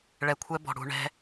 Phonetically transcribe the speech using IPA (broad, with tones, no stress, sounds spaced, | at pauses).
ɭ ɛ˧ kʷʰ ɛ˦ b ɔ̤˨ ɽ ṳ˧ ɳ ɛ̤˦